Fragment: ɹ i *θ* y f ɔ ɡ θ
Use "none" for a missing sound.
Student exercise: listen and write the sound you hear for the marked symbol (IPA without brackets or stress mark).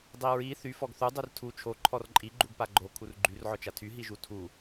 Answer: θ